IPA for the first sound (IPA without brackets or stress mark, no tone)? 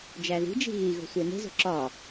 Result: d͡ʒ